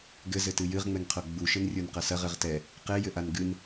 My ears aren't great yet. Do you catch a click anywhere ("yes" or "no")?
no